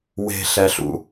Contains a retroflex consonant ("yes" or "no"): no